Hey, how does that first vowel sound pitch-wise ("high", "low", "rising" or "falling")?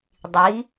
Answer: rising